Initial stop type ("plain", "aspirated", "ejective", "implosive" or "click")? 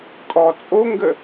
ejective